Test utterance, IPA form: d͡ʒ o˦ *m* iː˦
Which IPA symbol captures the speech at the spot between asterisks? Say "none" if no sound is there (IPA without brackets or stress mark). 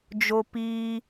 p